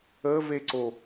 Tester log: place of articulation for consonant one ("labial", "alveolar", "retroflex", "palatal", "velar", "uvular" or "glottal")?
labial